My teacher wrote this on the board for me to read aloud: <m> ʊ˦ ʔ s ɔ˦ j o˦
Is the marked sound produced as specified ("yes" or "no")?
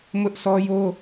yes